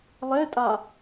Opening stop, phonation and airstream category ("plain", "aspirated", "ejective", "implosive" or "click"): ejective